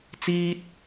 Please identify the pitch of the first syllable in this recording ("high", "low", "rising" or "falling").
high